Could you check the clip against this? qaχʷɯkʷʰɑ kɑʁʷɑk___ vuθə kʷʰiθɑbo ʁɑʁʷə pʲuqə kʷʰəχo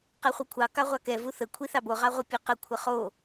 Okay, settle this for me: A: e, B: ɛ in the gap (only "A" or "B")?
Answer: B